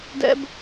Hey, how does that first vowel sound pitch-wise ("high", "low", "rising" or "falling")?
high